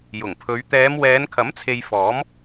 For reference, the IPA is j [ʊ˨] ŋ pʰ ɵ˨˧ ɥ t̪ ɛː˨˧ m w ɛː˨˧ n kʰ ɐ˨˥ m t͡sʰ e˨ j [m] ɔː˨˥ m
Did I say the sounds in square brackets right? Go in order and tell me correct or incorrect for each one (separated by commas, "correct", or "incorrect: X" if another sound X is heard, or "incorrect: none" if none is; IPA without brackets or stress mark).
incorrect: ʊ˨˩, incorrect: f